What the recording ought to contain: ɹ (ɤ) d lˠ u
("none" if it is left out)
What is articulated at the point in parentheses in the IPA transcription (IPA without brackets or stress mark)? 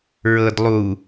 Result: ɤ